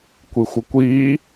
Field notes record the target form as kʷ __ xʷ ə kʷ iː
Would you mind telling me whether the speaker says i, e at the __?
i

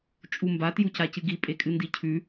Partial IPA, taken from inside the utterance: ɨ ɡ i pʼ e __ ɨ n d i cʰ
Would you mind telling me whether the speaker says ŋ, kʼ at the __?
kʼ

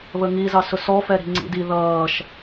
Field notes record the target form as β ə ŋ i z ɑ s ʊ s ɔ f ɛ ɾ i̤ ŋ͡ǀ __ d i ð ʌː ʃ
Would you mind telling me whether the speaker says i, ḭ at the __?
ḭ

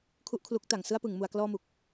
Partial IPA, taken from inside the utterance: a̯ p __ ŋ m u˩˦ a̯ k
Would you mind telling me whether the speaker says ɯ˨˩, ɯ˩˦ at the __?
ɯ˩˦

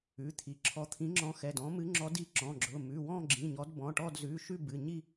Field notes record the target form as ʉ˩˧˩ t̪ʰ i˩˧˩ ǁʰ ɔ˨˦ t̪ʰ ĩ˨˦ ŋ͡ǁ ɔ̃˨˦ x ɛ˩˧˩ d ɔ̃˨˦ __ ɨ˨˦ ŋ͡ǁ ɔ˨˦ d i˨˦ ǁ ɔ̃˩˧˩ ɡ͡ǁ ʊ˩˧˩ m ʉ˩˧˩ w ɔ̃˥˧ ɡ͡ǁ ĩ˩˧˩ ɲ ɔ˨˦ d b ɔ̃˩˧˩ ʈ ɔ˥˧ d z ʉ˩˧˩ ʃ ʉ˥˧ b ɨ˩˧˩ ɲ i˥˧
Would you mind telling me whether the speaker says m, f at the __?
m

